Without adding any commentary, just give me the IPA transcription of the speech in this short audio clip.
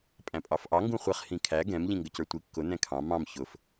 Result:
pʼ æ̃ pʼ ɑ f ʔ ɑ ŋ ɡ ũ χʷ ɛ χ h ĩ kʰ æ ɡ ɛ̃ m ʎ ĩ ŋ ɡ ə c ə˞ tʷ i kː ʊ n ɛ̃ kʰ ɑ̃ m ɑ̃ m ç ʊ f

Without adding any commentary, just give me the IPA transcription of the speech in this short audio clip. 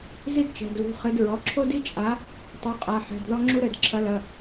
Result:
z i˥ d t͡ʃ ɛ̤˩˧˩ d l ṳ˩˧˩ χ ɘ˨˥ d ɹ ɔ˩˧˩ ǁʰ o˥ d i˥ t͡ʃʼ a˨˥ | tˤ u˩˧˩ qʼ a˩˧˩ ħ ɛ̤˩˧˩ d ð ɔ˥ ŋ͡ǁ u˥ ɾ ɘ˩˧˩ d ǁʰ ɐ˨˥ l ɐ˩˧˩

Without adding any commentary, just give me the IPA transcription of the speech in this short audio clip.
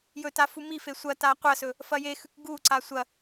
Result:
j ɵ t a f u m i f e sʷ ɐ t a qʷ ɐ s ɵ | f ɐ j e x ʉ k ɡ u ǀ a sʷ ɐ

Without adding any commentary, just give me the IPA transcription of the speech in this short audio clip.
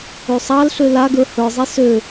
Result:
ø sˤ ɑ l ɬ ø l a ɡ ə˞ h ə˞ zˤ i s ø

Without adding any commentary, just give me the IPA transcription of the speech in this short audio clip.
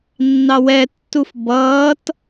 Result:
nː ɑ w ɛ tː u f b ʌː t

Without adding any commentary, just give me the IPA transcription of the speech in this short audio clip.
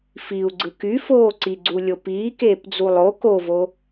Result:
f i u̯ ɡ͡ǀ ɯ k y f oː ǀ i ɡ͡ǀ u lʲ o p iː k eː p d͡z u lˠ o k o v o

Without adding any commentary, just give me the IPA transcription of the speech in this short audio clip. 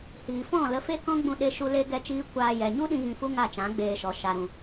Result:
h iː˨ f ɔ̃˦˨ l ə˧ f e˦ k ɔ̃˦ ɡ͡b ũ˧ ɗ e˧ ʃ u˧ l e˦ ɡ ɛ˦ t͡ʃ iː˦ kʷ aː˧ j ɛ˨ ɲ u˦ ɗ ĩ˧ ɣ ĩ˧ f u˦ ŋ a˦˨ t͡ʃ ã˨˦ ɡ͡b eː˧ ʃ ɔ˨ ʃ a˨ ɾ ũ˨

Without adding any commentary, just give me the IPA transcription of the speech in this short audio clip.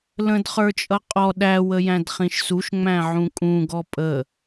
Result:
l ə̃ d χ ə˞ t͡ʃʼ ʌ qʼ ɔ ɗ æ w ə j æ̃ d χ ĩ ʃ s u ʃ ŋ͡m æ̃ ʕ ũ kʼ ũ ɡ ɔ pʼ ə

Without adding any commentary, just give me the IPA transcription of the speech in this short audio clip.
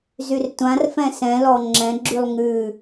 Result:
z y r tʷ ã r f ɛ̃ s ɛ̃ l ɔ ŋ͡ǁ ɛ̃ ɡ͡ǁ y lˠ ŋ ʉ

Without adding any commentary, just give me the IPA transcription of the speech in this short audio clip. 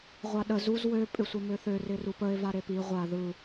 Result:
ʁʷ a ɗ ə z u z w ø pʼ ɪ sʷ ɪ m ø θ ø r ɪ r u p ə e̯ v a ɾ e p i ʁʷ a ð ɯ

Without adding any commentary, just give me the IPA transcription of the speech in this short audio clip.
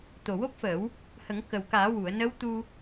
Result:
t̪ o˨˩ w o˦˥ p̚ f əː˨˩˦ w | h ə˨˩˦ ŋ k ə˨˩ w k aː˨˩˦ w u˨˩˨ ə̯ n ə˧˥ w t̪ u˧

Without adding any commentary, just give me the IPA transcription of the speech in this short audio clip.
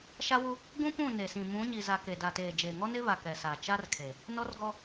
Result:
ʃ a˦ w u˦ | ɡ ũ˦ p ũ˦˨ n e˨ s ĩ˨ m ũ˨˦ ɲ i˨ z a˨ k e˨ d a˨ t eː˨ d͡ʒ eː˨ ŋ ɔ˦ n ɪ˦ β a˨ k ɛ˨ s a˨ t͡ʃ a˦ r kʰ e˨ | n ɔ˦ r ɡ ɔ˦

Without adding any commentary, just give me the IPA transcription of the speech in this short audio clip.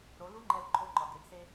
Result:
ɾ o˩˧ l u˧˥ ŋ͡ǃ ɛ˧ l ǃʰ o˧˥ ǃ ɒ˩ ɡ e˩˧ ɡ s e˧

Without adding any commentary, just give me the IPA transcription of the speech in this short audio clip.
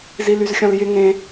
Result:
z i l y z xʲ ɔ̃ l j ɪ ŋ ẽ

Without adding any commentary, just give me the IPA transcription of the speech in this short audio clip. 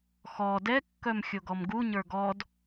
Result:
x ɔ d ɛ kː œ m xʲ o ɡ ɔ m ɡ u ɲ ə˞ ɡ ɔ d

